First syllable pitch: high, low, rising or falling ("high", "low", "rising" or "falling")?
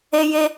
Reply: high